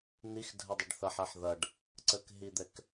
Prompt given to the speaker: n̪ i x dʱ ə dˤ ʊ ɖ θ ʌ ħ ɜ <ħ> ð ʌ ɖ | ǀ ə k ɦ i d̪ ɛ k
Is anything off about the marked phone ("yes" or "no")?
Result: no